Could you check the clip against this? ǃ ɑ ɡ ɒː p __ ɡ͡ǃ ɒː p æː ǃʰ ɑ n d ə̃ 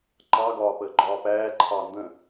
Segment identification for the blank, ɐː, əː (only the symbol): əː